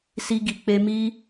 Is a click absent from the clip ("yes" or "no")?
yes